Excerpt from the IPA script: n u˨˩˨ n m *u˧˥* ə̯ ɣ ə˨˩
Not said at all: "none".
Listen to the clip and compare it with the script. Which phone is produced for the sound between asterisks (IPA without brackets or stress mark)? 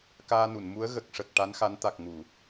u˧˥